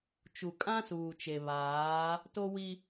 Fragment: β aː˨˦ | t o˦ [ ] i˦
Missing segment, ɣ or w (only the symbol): w